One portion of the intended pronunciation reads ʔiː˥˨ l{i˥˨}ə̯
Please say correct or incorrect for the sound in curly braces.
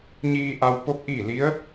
incorrect